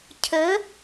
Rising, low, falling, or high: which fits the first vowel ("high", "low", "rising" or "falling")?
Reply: rising